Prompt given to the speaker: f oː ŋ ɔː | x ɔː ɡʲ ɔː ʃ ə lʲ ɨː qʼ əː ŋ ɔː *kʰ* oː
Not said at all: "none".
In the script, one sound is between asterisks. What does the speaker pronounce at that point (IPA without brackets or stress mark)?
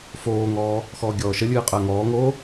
ŋ